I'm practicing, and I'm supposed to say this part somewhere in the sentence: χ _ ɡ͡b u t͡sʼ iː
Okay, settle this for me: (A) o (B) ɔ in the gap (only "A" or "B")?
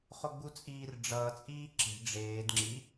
A